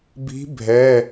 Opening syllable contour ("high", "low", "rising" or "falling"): rising